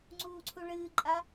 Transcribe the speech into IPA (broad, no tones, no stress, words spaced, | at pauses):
ŋ͡ǀuːǀʰuɭɨːǃʼa